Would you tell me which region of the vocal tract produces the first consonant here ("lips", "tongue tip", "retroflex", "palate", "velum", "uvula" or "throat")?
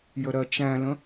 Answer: palate